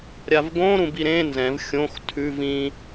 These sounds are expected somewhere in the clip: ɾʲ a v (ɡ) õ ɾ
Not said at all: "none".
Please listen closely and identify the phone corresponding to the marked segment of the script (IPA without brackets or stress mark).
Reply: ɡ